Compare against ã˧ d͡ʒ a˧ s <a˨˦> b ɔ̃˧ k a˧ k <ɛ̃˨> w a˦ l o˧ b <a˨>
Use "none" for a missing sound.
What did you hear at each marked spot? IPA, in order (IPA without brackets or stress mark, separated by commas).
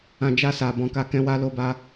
a˨, ɛ̃˦, a˧